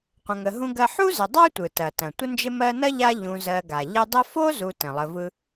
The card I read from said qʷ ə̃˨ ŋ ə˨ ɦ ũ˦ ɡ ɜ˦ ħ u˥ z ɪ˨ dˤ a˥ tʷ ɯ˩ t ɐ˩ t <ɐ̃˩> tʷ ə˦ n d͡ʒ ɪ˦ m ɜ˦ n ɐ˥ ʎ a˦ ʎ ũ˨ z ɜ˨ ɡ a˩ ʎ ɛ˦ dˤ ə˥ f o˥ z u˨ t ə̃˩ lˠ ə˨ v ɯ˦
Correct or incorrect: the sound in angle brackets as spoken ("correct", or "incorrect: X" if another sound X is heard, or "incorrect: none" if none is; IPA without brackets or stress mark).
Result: correct